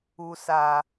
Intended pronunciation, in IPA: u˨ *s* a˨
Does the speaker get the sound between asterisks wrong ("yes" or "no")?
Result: no